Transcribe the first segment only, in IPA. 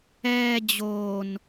ɛː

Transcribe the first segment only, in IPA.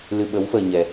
l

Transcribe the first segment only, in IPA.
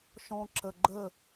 ʃ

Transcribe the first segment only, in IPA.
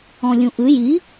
ɔ̃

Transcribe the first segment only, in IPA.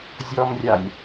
zʲ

